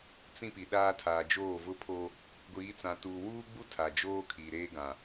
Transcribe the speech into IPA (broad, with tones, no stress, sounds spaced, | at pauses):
t͡s ĩ˦ p i˨ ɗ aː˦ tʰ aː˨ d͡ʒ oː˦˨ v ʊ˦ pʰ o˦ | ɡʷ iː˨˦ t͡s ã˨ t uː˨ w uː˦ ɡ͡b u˦ tʰ a˨ d͡ʒ oː˦ kʰ i˨ ɾ eː˦ ɡ ã˨